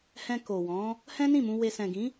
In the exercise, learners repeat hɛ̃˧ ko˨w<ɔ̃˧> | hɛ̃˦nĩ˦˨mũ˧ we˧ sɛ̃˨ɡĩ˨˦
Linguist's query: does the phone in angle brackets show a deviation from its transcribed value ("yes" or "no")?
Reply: yes